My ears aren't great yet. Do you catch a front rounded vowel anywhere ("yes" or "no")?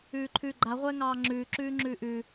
no